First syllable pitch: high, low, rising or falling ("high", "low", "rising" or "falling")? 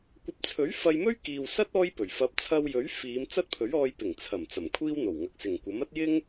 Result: rising